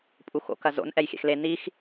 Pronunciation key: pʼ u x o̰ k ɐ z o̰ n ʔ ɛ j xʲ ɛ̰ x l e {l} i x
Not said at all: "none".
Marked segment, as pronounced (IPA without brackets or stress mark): n